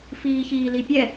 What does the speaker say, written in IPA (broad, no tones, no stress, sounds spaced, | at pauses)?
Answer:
f iː ç iː l i pʲ ɛ